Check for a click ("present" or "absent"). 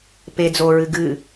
absent